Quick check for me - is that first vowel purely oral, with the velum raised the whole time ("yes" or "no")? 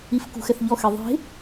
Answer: yes